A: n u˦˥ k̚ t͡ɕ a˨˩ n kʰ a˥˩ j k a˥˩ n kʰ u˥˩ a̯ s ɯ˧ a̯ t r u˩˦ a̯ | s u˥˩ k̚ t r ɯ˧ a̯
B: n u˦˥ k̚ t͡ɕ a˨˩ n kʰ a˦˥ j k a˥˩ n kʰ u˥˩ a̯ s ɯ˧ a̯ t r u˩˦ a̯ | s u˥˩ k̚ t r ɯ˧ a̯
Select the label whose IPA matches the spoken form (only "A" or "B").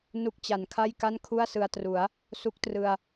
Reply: A